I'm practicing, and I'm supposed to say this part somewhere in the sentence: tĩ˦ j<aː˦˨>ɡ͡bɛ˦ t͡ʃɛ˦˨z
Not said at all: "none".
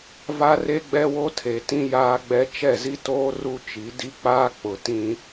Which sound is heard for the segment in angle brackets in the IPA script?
aː˦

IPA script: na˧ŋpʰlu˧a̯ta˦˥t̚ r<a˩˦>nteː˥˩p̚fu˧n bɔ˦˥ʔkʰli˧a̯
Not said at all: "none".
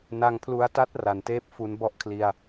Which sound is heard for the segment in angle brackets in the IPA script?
a˩˦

